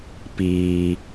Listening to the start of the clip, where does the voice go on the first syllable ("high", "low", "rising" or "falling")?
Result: low